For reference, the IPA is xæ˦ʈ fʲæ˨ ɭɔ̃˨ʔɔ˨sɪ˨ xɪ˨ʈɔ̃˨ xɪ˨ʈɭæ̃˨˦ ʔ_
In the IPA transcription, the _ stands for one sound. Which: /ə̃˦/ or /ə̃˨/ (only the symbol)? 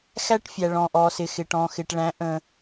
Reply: ə̃˨